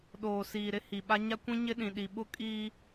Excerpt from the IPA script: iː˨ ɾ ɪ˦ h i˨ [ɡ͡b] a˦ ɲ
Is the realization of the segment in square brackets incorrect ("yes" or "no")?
yes